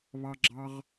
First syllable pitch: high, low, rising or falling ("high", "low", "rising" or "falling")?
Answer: high